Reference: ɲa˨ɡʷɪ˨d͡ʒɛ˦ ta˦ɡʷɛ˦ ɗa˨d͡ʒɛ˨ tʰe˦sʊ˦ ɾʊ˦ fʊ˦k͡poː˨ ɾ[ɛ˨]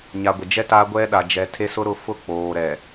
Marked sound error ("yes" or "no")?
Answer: no